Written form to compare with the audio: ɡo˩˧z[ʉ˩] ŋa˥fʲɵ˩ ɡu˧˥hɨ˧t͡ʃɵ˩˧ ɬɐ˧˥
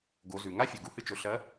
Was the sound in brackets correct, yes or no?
yes